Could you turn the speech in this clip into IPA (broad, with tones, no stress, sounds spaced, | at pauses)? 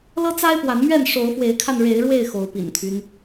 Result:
l ɤ˦ t͡s a˦ ɪ̯ p w a˨˦ n m ɥ ɛ˥˨ n ʂ o˨˦ ʊ̯ f w e˨˦ ɪ̯ kʰ a˧ n ɻ e˨˦ ɪ̯ ɻ w e˥˨ ɪ̯ x o˨˦ ʊ̯ p ḭ˨˩ n t̪ʰ y˦ n